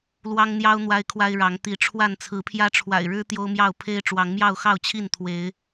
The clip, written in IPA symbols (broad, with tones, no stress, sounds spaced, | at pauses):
l w ɑ˦ ŋ n̪ j ɑ˦ ʊ̯ n̪ w a˦ ɪ̯ kʰ w a˦ ɪ̯ ɻ ɑ˨˦ ŋ t̪ i˨˦ ʈ͡ʂʰ w a˥˨ n t͡sʰ ɹ̩˨˦ pʰ j ä˦ ʈ͡ʂʰ w a̰˨˩ ɪ̯ ɻ ɻ̩˦ t̪ j o˦ ʊ̯ m j ɑ˥˨ ʊ̯ pʰ e˦ ɪ̯ ʈ͡ʂ w ɑ˨˦ ŋ m j ɑ˥˨ ʊ̯ x ɑ˥˨ ʊ̯ t͡ɕʰ i˥˨ n t̪ʰ w e˨˦ ɪ̯